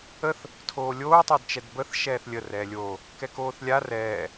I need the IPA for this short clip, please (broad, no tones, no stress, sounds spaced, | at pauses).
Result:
ə θ | tʰ oː lʲ oː tˤ o d t͡ʃ ɛ d b ə θ ʃ ɛː θ lʲ ə r ɛː lʲ oː | k ɛ k oː θ lʲ a r ɛː